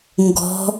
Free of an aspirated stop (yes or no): yes